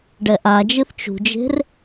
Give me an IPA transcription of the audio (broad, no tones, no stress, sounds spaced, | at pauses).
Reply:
ɖ ɛ ʔ a d͡ʒ ɨ θ t͡ʃ ṳ d͡ʒ e̤ r